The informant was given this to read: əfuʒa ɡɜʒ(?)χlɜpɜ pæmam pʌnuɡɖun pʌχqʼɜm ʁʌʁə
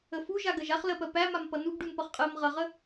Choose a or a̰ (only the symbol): a